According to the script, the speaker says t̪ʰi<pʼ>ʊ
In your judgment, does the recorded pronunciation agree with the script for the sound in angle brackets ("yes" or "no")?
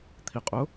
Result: no